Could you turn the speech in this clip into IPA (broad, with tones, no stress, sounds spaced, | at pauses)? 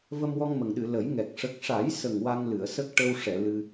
v ə˧ m w ɔ˧ ŋ m ə˨˩ ŋ ɗ ɨ˨˩˨ l ə˨˩˦ j ŋ ɛ˨˩ k̚ ʂ ə˨˩ k̚ ʂ a˨˩˦ j s ə˨˩ ŋ w a˧ ŋ l ɨ˨˩˨ ə̯ s ə˦˥ k̚ ʈ ə˧ w ʂ ɛ˨˩˨ l ɨ˧